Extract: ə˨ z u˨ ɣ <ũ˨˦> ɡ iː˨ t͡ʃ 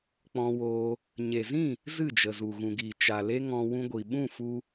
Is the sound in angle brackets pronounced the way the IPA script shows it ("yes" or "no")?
no